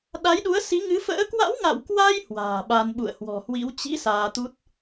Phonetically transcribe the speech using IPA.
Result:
ɗ a˨˦ j ɗ u˨˦ ə̯ s i˨˦ ŋ ɨ˨˦ f ə̰ː˧˥ k w a̰˧˥ w ŋ a̰˧˨ w k w a˧ j h w a̤ː˨˩ ɓ a˧ n ɓ ṵ˧˨ ə̯ h w ɔ̤˨˩ h w ḭ˧˥ w t͡ɕ ḭ˧˥ s aː˧ t̪ u˦˥ t̚

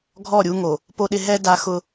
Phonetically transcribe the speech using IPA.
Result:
ɡʱ ɔ˦˨ ɾʲ u˦ ŋ o˨ | p o˦ ɗ ɪ˦ ɦ ɛ˦ d a˦ x ʊ˦

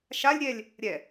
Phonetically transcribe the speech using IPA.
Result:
ʃ a lʲ ɾʲ ɛ lʲ | ɾʲ ɛ

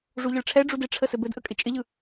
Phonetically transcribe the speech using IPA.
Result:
ʐ u ʎ ə ɭ ʈ͡ʂʰ ɛ ɖ͡ʐ u d ɪ ʈ͡ʂʰ ə s ɘ b ɘ d ʔ ə kʼ ɪ t͡ʃʼ ɪ ʎ ɯ

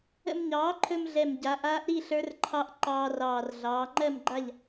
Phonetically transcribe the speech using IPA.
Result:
ə̰˧ m ɲ ɑː˩˥ ǃʰ ɵ˧ m ɮ ɛ˨˩ m ɟ a˩˧ ʔ aː˧˥ ʔ ɾ i˥˨ ɬ ə˞˧˥ r ǃʰ ɑ˧˥ ʔ ǃ ɑː˧ r ɑː˨˩ r ɮ ɑː˩˧ ŋ͡ǃ ɜ˥˨ m ɡ͡ǃ a˥˨ ʎ

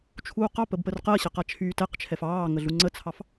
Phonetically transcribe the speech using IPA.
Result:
t͡ʃʰ uː q ɑ p ə b p ə r q ɜ ɕ ə q a t͡ʃʰ yː t ɛ q t͡ʃʰ ɛ f ɑː ŋ ə ɮ u ŋ͡ǀ ə t͡sʰ ɑ f

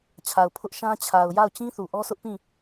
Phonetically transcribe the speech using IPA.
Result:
t͡ɕʰ a˨ ʊ̯ pʰ ʊ˦ ʔ ʃ ã˦ t͡ɕʰ a˨ ʊ̯ j a˦˨ ʊ̯ t͡ɕ ĩ˦ θ u˨ ʔ ɔ˦ s ʊ˦ ʔ p ĩ˦˨

